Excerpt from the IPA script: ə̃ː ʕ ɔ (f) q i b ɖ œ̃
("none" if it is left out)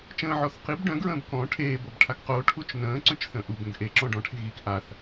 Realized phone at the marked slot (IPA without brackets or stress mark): θ